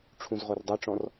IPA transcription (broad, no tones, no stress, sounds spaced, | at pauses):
ʈ͡ʂʰ ũ z ʁ o r dˤ œ ʈ͡ʂ ɔ̃ r